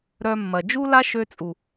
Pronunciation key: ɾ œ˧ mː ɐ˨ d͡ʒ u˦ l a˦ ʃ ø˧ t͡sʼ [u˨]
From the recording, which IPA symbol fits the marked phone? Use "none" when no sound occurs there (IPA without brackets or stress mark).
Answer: u˨